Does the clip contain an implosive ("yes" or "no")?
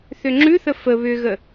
no